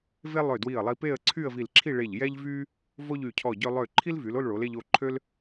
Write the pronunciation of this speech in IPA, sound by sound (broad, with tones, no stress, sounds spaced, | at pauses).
v e˥ lˠ ø˧˩ d w i˧˩ ə̯ lˠ i˧ p e˥˧ ə̯ ǀʰ y˥˧ ə̯ v i˧˩ l ǁʰ i˥˧ ɭ e˧˩ ʎ j ɛ˥ ʎ v y˥ | v o˥ ʎ y˧˩ cʰ ɔ˧˩ ɟ ø˧ lˠ ø˧˩ ǃʰ i˥ l v y˩˧ l o˥˧ l ɭ o˩˧ l e˧ ʎ o˧ ǃʰ ø˥ l